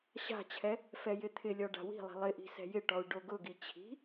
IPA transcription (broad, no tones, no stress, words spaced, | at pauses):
ɕa̤t͡ɕʰɛ | fɛjɪt̪ʰɪlʲɔ ɖa̤wi̤lˠi̤ lˠɪʔi̤ sɛ̤jɪʈɔu̯ ɖoɡʊɡi t͡ɕʰi̤